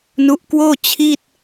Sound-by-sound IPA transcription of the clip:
n u˦˥ ʔ k w oː˥˩ t͡ɕʰ i˥˩ t̚

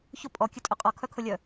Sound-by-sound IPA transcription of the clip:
ç ʊ pʼ ɔ kʲ ɵ tʼ ɵ qʼ ɔ kʰ œ kʰ ʊ lʲ œ

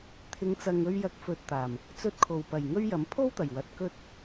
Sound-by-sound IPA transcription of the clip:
t̪ʰ ɪ˨˧ ŋ t͡s ɐ˨ ŋ ɵ˧ ɥ j ɐ˨˥ k̚ f ɵ˨ t̚ t̪ aː˨˩ m | t͡s ɵ˧ t̚ kʰ o˨˩ w p ɐ˨˩ j ŋ ɵ˥ ɥ j ɐ˨˥ m pʰ o˥ w t̪ ɐ˨˩ j w ɐ˨ t̚ k ɵ˧ t̚

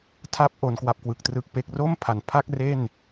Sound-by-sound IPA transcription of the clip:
tʰ a˥˩ p̚ ʔ o˧ n k w a˦˥ p̚ k w ɯ˨˩ k̚ t r ɯ˦˥ k̚ p e˦˥ k̚ r o˥˩ m pʰ a˨˩ n pʰ a˥˩ k̚ r e˥˩ n

